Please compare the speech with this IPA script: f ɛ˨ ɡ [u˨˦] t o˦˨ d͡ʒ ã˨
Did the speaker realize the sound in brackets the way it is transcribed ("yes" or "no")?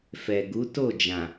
yes